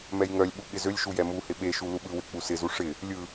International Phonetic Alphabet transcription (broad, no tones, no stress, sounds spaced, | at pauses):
m ɛ j ŋ œ lʲ ɓ u ɠ ɪ z ø lʲ ʃ u j ɛ m u h ɪ ɓ e ʃ u l u ɓ ɯ w ɪ k͡p u s ɪ z u ʂ ɪ | lʲ ɯ